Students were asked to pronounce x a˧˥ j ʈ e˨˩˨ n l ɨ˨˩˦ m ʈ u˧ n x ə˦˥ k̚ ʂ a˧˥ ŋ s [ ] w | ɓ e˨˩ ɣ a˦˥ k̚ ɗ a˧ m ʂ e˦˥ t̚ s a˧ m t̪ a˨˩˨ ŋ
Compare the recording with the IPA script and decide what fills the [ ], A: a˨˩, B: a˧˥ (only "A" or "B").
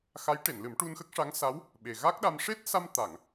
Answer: B